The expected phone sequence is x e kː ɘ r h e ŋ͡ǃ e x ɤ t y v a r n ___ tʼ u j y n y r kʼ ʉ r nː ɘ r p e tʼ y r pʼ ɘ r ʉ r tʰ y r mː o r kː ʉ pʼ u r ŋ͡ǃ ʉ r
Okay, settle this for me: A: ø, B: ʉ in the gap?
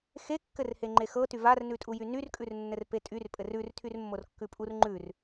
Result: B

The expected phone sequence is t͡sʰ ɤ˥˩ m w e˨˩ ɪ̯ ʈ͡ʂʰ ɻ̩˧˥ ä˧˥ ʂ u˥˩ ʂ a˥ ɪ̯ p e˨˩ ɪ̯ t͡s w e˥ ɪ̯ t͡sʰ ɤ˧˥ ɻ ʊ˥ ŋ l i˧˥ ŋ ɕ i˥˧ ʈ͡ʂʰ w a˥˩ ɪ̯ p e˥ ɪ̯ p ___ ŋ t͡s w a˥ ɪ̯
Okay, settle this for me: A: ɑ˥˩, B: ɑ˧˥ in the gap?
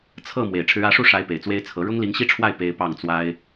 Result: A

